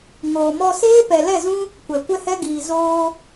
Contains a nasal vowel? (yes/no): yes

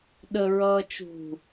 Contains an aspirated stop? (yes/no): no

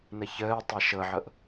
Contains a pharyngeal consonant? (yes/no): yes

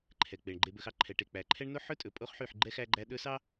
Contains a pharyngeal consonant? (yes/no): yes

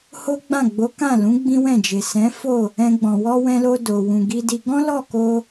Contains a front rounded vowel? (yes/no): no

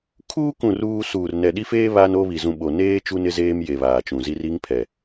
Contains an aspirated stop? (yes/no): yes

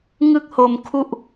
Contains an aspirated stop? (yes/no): yes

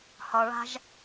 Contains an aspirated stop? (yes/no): no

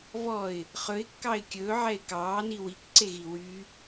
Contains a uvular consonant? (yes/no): yes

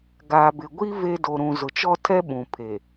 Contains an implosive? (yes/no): yes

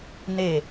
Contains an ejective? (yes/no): no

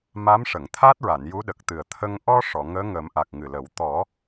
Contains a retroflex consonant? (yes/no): yes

